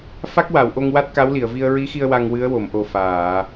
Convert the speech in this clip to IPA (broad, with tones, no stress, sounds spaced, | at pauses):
f a˦˥ k̚ w a˨˩˨ w ʔ o˧ ŋ w a˦˥ t̚ k a˧˥ w l i˨˩˨ ə̯ v i˧ ə̯ ɹ i˧˥ x i˧ ə̯ w a˧ ŋ w ɨ˧˥ ə̯ w o˨˩˨ m ʔ o˨˩ f aː˨˩˨